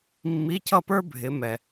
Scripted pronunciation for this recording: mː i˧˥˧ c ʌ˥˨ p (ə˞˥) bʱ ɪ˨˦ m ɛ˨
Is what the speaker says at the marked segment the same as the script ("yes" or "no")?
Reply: yes